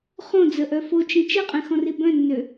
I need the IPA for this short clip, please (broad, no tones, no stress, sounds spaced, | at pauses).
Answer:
χ õ d͡z ə ʔ œ f o t͡ʃ ĩ t͡ʃ e qʼ ẽ x ɔ̃ r i b œ̃ nː ø